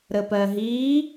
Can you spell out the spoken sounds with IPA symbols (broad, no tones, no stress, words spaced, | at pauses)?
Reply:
ɾəpɜɦiː